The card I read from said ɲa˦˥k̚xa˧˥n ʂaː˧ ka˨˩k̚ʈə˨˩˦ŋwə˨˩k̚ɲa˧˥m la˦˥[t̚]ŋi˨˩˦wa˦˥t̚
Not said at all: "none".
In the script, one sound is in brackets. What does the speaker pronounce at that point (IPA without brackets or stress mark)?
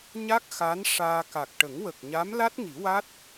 t̚